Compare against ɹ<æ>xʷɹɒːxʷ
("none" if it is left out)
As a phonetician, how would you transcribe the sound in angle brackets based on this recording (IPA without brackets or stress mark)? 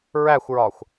æ